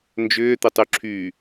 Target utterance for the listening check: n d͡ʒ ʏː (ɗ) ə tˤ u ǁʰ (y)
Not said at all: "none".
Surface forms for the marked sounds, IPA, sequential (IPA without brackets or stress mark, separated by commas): t̪, y